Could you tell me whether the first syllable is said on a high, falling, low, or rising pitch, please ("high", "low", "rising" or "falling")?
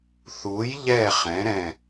rising